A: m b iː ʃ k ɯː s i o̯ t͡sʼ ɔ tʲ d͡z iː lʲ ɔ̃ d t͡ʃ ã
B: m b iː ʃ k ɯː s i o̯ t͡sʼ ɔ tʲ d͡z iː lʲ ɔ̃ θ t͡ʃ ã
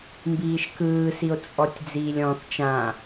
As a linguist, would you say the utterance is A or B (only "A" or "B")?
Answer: B